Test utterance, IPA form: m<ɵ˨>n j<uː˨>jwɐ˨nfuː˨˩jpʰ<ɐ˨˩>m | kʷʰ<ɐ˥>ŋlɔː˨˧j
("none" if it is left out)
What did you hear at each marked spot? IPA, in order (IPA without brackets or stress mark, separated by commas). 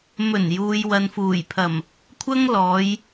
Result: ɵ˨˩, uː˨, ɐ˨˩, ɐ˥